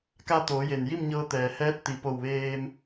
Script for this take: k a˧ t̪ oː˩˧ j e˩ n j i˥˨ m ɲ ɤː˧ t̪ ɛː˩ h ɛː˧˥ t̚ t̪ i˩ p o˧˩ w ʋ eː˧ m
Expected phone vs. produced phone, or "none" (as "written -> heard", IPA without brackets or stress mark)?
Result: none